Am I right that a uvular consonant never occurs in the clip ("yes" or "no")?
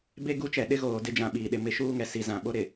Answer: yes